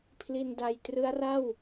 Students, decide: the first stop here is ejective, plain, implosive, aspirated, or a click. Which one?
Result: aspirated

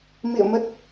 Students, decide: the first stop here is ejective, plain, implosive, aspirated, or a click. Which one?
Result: plain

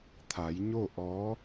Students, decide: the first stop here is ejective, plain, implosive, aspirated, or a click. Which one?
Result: aspirated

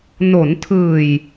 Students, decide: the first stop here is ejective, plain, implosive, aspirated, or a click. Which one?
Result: aspirated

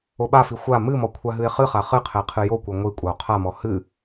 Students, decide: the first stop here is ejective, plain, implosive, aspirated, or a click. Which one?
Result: implosive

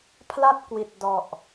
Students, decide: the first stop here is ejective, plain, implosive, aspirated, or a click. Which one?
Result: aspirated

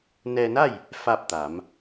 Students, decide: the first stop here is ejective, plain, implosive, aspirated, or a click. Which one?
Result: plain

